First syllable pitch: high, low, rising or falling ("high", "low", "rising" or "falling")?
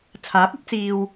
rising